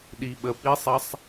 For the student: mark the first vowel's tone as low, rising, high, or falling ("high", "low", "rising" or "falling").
low